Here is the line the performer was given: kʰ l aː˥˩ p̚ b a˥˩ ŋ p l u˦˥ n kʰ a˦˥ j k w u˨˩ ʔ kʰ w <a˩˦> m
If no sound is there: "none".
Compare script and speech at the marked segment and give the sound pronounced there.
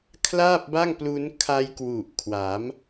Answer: a˩˦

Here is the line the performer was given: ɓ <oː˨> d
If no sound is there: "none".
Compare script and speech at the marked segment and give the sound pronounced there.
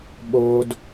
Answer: oː˦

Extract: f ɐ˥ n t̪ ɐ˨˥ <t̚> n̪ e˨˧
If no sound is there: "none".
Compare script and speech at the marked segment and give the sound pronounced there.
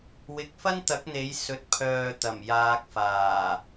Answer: k̚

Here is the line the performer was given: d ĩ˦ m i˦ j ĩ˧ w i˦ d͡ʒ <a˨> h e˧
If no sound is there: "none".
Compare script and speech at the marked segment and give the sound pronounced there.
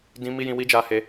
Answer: a˧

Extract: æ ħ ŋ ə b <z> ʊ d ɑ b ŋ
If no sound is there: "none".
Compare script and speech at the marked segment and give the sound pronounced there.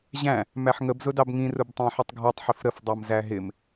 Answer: z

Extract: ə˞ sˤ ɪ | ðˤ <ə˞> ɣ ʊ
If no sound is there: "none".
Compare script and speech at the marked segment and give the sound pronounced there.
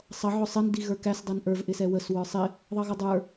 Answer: ʌ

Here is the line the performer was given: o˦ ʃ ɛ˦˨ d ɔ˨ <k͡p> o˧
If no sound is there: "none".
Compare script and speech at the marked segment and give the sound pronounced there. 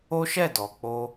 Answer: k͡p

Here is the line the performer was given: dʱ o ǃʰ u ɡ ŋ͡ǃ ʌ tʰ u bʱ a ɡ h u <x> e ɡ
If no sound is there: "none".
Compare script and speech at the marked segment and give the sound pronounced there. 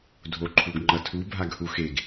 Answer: x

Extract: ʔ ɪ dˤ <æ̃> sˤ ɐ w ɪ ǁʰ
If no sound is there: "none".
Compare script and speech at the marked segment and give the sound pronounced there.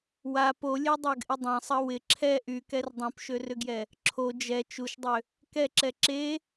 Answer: ɐ̃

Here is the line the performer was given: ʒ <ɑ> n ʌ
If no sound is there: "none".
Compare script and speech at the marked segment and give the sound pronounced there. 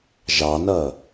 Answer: ɑ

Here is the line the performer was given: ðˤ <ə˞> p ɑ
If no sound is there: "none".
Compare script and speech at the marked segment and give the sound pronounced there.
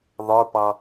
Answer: ə˞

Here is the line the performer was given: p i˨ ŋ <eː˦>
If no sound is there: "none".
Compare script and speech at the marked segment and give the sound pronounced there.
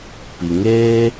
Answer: eː˦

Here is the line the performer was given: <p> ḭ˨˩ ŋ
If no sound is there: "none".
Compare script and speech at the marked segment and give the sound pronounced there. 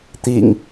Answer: t̪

